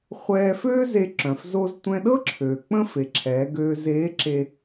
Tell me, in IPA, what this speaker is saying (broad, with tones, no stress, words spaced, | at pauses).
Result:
χʷɛː˧føː˥ze˧ ǁœ̃˩fzo˧z tʷɛ̃˧ɗɤ˥ǁʰøː˩ k͡pə̃˥fe˩˧ǁʰɛː˩˧ɡøː˧ zeː˧˥ǁe˧